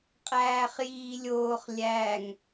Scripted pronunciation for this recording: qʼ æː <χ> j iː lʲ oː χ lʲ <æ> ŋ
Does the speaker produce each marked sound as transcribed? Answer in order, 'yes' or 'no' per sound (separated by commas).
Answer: yes, yes